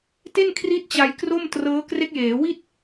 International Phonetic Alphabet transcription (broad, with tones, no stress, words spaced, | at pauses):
te˥˩nkʰri˦˥t̚ t͡ɕa˧jkro˥˩mtrɤː˦˥ kre˦˥k̚jeː˩˦wi˥˩t̚